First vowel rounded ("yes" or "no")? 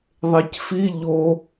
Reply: no